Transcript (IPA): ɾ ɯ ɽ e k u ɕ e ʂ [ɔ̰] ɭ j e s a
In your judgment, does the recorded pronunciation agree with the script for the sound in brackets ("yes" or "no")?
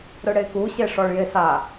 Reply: no